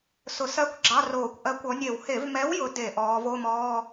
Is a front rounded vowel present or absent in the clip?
absent